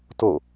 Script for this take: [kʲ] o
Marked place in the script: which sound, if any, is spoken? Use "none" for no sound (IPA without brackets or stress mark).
t